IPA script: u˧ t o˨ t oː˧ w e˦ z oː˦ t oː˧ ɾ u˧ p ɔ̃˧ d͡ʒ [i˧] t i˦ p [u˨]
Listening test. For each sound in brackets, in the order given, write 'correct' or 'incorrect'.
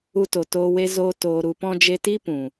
incorrect: e˧, incorrect: ũ˨

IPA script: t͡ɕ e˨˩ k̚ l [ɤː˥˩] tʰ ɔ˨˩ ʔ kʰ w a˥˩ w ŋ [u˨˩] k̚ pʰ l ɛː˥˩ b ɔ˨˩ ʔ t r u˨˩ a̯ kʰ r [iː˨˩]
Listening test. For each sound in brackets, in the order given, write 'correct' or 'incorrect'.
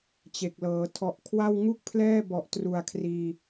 incorrect: ɤː˩˦, incorrect: u˥˩, correct

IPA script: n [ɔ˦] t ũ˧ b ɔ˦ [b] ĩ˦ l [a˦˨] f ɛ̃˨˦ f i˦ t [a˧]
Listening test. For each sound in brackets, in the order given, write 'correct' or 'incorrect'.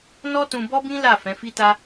correct, correct, correct, incorrect: a˦

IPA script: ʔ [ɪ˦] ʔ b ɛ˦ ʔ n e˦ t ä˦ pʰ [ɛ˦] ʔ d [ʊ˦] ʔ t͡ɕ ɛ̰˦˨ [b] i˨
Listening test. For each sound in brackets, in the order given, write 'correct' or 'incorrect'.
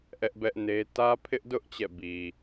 incorrect: ɛ˦, incorrect: ɪ˦, correct, correct

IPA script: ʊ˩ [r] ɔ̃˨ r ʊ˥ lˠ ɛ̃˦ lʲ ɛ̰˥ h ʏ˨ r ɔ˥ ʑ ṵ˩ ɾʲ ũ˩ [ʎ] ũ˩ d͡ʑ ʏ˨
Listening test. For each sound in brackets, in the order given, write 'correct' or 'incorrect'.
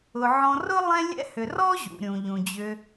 incorrect: ʕ, correct

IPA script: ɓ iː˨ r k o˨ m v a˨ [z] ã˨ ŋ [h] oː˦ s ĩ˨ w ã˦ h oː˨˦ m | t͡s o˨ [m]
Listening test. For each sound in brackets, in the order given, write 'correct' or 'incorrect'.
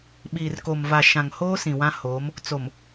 incorrect: ʃ, correct, correct

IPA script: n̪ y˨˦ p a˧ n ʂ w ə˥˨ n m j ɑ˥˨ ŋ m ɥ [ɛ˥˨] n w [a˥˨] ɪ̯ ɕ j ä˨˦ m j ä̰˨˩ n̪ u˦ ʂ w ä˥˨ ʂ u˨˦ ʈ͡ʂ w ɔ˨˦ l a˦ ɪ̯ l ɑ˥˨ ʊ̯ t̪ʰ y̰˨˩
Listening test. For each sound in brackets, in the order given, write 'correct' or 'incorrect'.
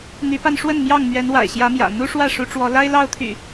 incorrect: ɛ˨˦, incorrect: a̰˨˩

